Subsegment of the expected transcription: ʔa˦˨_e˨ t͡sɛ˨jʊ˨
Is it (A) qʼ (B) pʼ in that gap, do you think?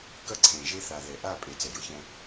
B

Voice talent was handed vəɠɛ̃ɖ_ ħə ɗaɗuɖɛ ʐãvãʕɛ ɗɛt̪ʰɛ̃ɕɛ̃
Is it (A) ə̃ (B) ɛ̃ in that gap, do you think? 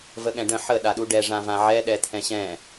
A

